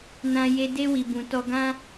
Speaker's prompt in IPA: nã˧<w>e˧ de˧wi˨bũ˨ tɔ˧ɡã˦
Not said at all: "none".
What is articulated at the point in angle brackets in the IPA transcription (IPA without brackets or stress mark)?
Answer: j